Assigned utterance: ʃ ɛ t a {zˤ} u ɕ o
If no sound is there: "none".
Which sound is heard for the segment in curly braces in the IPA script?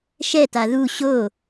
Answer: ð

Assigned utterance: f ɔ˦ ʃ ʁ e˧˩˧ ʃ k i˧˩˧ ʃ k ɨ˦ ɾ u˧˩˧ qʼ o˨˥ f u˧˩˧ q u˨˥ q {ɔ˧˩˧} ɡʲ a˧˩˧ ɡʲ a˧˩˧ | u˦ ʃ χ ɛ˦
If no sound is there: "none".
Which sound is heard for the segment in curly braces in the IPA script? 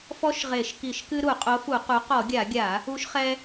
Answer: ɔ˧˩˧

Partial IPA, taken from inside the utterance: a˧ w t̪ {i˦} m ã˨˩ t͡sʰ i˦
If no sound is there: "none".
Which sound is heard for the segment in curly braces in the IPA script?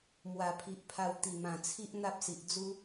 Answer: i˨˩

